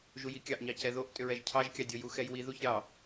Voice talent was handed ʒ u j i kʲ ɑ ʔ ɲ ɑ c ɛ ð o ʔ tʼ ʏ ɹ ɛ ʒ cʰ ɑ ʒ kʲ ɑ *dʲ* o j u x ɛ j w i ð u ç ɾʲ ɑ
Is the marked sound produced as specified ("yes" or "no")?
yes